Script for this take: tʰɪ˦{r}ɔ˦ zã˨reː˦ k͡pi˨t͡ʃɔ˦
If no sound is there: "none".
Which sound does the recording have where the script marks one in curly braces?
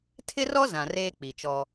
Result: r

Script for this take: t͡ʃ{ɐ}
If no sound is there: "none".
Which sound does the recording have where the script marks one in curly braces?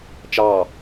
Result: ɑ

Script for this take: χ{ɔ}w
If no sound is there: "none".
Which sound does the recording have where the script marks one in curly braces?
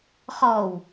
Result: ɔ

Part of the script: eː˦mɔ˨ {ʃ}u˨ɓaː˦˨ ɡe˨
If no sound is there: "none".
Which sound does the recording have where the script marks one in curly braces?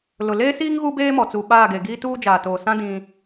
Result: t͡s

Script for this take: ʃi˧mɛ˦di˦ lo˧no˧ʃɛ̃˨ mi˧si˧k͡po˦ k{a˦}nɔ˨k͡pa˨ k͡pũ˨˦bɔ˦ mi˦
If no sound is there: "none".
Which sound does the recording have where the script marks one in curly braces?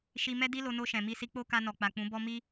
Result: a˧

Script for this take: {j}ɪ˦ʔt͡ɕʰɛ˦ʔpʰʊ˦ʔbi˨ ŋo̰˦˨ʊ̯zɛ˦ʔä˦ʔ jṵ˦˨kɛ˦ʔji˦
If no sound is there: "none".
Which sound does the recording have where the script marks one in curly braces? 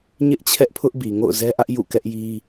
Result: ɲ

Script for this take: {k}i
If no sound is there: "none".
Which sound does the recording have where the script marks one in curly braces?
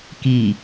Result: k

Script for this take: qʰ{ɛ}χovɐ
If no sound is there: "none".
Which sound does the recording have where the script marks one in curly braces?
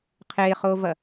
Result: e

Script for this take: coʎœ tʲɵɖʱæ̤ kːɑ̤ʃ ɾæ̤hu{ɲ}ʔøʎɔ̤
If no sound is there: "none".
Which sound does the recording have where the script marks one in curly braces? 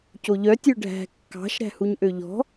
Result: ɲ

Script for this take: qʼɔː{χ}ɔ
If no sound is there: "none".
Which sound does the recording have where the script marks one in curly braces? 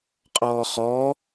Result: χ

